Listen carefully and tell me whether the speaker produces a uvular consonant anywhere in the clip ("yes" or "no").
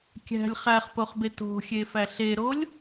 yes